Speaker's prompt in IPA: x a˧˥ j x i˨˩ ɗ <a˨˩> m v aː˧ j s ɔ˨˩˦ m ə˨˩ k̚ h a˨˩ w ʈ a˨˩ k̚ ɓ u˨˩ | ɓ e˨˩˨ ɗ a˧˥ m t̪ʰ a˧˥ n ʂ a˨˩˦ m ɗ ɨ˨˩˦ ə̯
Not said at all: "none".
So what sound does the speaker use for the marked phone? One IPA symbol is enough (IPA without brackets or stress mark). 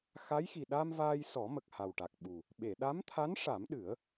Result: a˧